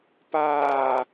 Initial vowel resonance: oral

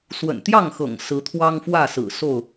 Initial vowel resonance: oral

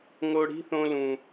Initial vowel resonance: oral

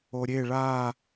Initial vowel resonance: oral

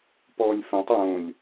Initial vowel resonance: oral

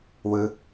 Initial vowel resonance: oral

